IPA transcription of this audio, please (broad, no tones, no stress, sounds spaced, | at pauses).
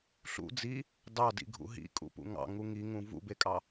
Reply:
ɬ ṵ d͡z i | d ɑ d ḭ ɡʱ ṵ ɦ ḭ kʼ ṵ p ṵ ŋ ɑ̰ ŋ u ŋ i ŋ ũ v ṵ b e kʼ ɑ